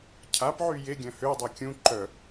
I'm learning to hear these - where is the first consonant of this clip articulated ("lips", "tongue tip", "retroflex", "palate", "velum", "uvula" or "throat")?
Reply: palate